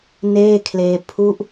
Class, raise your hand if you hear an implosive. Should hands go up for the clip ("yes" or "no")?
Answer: no